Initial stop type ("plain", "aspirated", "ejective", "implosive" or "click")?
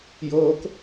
plain